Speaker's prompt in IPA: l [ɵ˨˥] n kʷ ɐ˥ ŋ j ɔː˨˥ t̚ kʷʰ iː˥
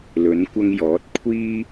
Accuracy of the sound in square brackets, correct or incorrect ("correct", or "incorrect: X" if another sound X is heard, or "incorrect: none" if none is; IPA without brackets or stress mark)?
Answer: correct